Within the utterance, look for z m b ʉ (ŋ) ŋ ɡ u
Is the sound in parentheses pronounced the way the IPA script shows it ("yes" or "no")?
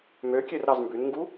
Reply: no